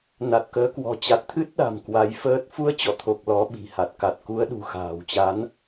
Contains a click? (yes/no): no